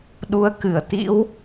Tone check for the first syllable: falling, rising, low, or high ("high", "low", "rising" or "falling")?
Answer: rising